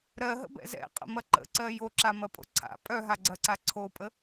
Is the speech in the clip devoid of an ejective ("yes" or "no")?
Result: no